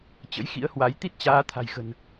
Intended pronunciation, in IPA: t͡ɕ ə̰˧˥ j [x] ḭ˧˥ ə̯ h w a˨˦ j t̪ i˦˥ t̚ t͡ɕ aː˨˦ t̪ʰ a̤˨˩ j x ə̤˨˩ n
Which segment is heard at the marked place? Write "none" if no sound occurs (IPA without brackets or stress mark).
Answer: x